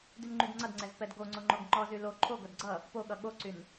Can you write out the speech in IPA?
dynŋ͡ǃydŋ͡ǀʌdŋ͡ǀɛz pɛdɡoŋ͡ǀo ŋ͡ǃoɡŋ͡ǃɔzy lo ǃʰoɡʌd ɡ͡ǀʌ | poɠʌ ɠoǀyn

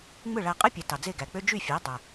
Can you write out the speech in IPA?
ŋ͡mɯ˥˩ɭæ˧qʼɯ˥pʲæ˩˥ tɑ˩d͡ze˥˩ɡæ˩k͡pø˥ d͡ʒy˥˩fʲæ˩˥ dˤæ˩

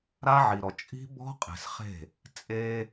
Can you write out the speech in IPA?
ɾa˦ʕi˨ɾɔ˨ t͡ʃʼi̤˦bɔ̤˦ qʼe̤˨sχe̤˦˨ | t͡sʼe˦

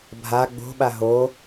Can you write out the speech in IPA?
bʱa ɡ͡bo̤ɓa ɦo

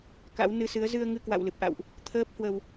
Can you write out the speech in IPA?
ka̰˧˥wnɨ˧sɨ˨˦ə̯ zɨ˧ə̯ ŋɨ˧kwa̰˧˨w lɨ˨˩p̚ʔa̰˧˨wʔ | t̪ʰəː˦˥p̚hwə˧w

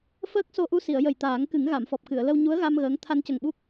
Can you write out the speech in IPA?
fəː˦˥k̚so˧ʔu˧si˨˩˨ə̯ jə˨˩jt̪aː˨˩˦ŋkɨ˨˩˦ŋ ɣa˨˩˨mfɔ˨˩p̚kɨ˨˩˨ə̯lə˧w ɲu˧˥ə̯ɣa˧m ɣəː˧˥ŋ t̪ʰa˧ncə˨˩ŋɓu˦˥k̚

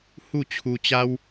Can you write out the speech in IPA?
hu˥˧ t͡ɕʰu˧t͡ɕa˦w

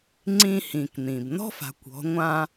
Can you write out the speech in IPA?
ŋ͡ǀĩ˧hĩ˩kn̪ĩ˩b nɔ̤˥fa̤˩˧kʷ ɔ̤˩˧ŋʷã˧

